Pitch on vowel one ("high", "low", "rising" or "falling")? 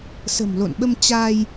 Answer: low